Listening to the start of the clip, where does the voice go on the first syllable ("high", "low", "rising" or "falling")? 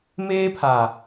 high